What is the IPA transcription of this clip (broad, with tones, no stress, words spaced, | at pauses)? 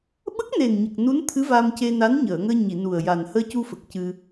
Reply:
ɓə˦˥k̚ne˨˩n ɲə˨˩k̚nu˧˥nt̪ʰɨ˧˥ va˧mce˧ na˧˥nɲəː˨˩˨ŋəː˧ɲi˨˩˨ nu˨˩ə̯ja˨˩n həː˧cu˧fə˨˩k̚ cɨ˧